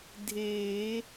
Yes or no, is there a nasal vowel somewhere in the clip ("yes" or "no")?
no